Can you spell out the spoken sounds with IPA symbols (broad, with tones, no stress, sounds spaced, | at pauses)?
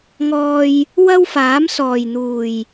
ŋ ɔː˨ j | w ɐ˥ w f aː˨˥ m s ɔː˨˩ j n̪ uː˨˩ j